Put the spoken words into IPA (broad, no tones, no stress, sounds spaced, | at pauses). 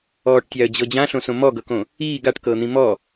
ɔː ʈ tʲ a ə̯ d͡ʑ ɤ d͡ʑ ã ɬ õ s õ m ɔ ɡ ɤ k õ | iː ɡ a ʈ k ɤː n̪ ĩ m ɔ